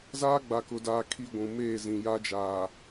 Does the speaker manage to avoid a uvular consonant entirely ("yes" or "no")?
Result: yes